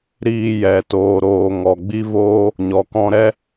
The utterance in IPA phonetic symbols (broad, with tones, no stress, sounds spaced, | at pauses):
ɾ iː˧ j ɛ˨ t oː˨ ɾ oː˨ ŋ ɔ˨ ɡ͡b i˦ v oː˦ | ɲ ɔ˨ k ɔ̃˧ ɾ ɛ˦